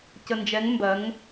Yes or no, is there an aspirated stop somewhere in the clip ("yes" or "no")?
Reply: no